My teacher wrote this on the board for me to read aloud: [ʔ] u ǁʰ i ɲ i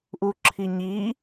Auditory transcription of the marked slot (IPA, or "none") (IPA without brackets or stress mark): ʔ